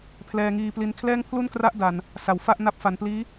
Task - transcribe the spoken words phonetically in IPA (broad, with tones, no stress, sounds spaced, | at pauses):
pʰ l ɛː˧ ŋ iː˧ p l i˧ n kʰ l ɛː˥˩ ŋ pʰ l u˥˩ n k r a˦˥ ʔ d a˨˩ n | s a˨˩ w f a˥˩ ʔ n a˦˥ p̚ f a˨˩ n p l iː˦˥